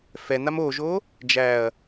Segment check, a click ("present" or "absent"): absent